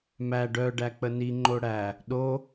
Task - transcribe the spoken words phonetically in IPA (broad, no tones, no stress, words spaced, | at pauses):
mæ ɖœɖæ k͡pəniŋ͡ǃo ɽæ | ɗo